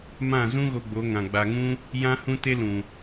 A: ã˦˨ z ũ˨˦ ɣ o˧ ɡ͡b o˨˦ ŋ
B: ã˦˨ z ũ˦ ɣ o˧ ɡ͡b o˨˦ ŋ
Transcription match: B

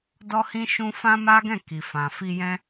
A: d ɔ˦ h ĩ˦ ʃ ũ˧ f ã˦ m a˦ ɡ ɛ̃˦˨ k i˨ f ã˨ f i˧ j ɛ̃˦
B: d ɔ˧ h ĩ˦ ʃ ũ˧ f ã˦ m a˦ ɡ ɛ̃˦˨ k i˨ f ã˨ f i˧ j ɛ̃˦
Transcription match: A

